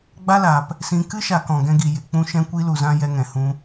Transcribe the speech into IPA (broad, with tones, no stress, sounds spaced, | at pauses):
ɡ͡b a˦ l aː˨ p | s ĩ˧ k ɨ˦ ʃ a˨ k ɔ̃˨ ɡ ɛ̃˧ ɡ i˨ j e˨ k͡p ũ˧ ʃ ɛ̃˧ kʷ i˧ l u˨ z ã˧ j ɛ˧ ŋ ɛ̃˨ h ũ˧